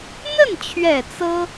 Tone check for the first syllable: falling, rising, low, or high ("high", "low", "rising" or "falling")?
falling